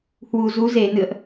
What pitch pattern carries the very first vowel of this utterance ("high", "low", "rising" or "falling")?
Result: low